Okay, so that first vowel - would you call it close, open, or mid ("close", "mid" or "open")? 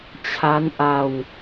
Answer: open